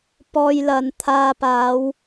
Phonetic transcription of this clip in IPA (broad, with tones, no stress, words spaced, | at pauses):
pɔː˧jlɐ˨nt̪ʰaː˧ paː˨˧w